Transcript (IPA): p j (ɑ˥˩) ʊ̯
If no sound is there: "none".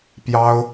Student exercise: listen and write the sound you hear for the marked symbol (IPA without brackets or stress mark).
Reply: ɑ˥